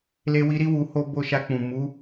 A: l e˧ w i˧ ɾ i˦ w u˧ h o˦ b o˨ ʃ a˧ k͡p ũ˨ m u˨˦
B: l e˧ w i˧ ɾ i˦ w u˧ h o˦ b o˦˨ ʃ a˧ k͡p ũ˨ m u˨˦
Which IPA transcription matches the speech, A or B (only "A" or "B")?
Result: B